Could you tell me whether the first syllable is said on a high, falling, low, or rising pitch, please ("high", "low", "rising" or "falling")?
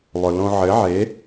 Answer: low